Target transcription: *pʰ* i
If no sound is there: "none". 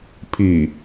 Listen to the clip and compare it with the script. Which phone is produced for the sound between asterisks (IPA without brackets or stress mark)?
pʰ